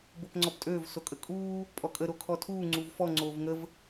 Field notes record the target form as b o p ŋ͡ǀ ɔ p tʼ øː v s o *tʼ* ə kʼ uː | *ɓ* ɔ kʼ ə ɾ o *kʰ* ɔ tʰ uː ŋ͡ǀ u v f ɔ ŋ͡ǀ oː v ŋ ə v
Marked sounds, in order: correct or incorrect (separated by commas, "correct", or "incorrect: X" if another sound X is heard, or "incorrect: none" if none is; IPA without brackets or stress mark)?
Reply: incorrect: kʼ, incorrect: pʼ, correct